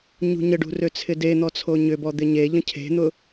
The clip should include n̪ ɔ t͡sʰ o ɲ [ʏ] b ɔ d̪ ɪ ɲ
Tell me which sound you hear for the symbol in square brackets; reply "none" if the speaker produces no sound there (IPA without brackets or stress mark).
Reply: ʏ